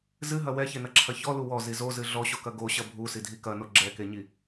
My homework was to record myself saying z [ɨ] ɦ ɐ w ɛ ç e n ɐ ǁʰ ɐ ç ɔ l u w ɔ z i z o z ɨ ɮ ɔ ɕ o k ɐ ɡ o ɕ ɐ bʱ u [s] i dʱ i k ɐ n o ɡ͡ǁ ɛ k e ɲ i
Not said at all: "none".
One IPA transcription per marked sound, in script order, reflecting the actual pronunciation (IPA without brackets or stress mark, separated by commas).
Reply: ɨ, s